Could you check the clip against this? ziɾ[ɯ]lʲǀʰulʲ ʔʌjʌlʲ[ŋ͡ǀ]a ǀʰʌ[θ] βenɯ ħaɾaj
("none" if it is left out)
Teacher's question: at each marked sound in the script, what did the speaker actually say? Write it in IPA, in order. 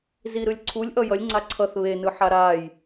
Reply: ɯ, ŋ͡ǀ, θ

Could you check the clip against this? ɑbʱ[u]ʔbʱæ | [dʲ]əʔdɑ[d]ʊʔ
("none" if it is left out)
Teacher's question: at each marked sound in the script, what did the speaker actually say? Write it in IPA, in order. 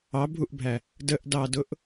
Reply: u, d, d

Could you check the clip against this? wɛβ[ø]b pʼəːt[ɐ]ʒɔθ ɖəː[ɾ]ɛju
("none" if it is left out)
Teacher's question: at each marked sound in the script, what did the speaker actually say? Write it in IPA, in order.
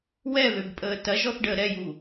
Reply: ø, ɐ, ɾ

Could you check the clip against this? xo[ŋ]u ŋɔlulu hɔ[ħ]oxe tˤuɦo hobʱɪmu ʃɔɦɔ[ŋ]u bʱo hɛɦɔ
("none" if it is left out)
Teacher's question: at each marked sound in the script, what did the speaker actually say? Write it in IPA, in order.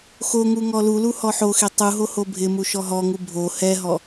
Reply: ŋ, ħ, ŋ

